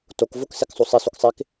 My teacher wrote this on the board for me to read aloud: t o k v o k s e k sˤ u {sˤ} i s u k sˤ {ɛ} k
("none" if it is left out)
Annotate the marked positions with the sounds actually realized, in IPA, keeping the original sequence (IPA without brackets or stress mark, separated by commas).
sˤ, e